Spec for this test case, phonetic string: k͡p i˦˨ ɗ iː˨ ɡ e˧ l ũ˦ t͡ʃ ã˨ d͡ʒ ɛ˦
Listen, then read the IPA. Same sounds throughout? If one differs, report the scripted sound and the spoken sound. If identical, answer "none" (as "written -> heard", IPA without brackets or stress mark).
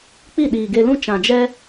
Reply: none